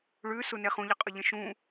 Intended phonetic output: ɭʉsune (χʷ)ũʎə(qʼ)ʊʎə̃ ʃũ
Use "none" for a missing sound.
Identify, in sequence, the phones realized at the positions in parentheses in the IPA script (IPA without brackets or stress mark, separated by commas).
χ, qʼ